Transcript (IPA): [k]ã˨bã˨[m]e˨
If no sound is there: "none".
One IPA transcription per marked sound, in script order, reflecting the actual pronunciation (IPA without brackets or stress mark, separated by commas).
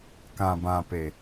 k, p